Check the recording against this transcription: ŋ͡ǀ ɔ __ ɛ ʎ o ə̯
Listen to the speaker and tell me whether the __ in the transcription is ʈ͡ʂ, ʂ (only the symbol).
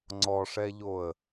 ʂ